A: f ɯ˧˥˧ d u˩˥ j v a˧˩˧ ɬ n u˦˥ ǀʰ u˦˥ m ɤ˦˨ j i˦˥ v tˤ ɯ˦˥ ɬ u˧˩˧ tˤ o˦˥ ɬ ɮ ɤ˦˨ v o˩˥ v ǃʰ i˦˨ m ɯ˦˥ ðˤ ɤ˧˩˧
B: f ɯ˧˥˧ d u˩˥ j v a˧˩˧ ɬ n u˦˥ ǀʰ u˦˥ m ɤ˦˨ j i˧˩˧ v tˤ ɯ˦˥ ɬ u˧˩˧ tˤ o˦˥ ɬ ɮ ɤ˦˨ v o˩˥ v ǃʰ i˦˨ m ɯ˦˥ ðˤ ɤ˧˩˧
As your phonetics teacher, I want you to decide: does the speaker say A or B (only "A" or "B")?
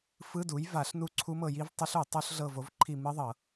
A